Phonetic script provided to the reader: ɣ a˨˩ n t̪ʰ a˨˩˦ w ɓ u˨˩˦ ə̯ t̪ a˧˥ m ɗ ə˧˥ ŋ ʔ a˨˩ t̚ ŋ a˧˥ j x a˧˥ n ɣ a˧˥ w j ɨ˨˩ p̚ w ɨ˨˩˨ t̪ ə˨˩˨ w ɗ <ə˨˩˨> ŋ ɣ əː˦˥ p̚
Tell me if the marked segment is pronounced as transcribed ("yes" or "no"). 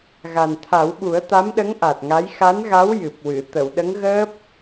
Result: no